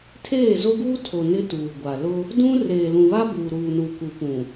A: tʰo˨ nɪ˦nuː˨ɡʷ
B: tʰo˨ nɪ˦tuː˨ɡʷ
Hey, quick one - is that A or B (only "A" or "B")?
B